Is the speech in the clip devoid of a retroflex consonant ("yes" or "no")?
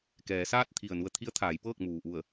yes